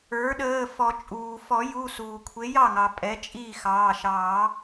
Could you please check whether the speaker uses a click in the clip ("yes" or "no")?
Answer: no